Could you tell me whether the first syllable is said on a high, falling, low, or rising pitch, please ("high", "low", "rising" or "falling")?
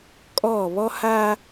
falling